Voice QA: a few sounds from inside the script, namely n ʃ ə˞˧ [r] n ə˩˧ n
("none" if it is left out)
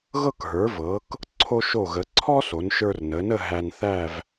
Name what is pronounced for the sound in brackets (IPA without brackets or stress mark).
r